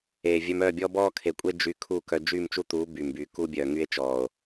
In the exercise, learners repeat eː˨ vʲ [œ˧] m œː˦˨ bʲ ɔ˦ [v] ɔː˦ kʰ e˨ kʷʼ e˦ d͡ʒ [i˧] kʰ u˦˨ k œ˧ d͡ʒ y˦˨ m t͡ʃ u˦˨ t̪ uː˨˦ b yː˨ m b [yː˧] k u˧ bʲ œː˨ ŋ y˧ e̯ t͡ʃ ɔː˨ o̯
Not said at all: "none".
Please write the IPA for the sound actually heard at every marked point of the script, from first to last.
œ˧, b, y˧, yː˨

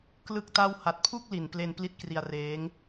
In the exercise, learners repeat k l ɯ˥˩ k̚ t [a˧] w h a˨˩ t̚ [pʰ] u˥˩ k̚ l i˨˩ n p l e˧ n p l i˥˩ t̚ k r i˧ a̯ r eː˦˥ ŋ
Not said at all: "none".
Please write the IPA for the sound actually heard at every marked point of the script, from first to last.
a˥˩, pʰ

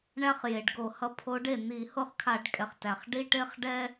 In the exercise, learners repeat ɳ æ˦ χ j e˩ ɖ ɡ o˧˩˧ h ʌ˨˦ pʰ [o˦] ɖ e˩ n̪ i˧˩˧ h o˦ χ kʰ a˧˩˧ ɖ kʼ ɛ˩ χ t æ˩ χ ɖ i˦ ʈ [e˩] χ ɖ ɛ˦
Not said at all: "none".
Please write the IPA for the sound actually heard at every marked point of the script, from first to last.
o˨˦, e˦

